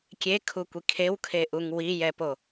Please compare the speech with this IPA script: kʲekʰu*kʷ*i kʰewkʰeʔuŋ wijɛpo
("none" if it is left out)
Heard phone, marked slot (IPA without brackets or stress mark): kʷ